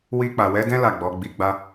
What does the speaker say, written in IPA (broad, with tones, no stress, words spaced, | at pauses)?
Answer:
wi˧k͡pa˨wɛ˨˦dɛ̃˦ la˦˨ɡ͡bɔ˨˦ ɡ͡bi˧ɡ͡ba˦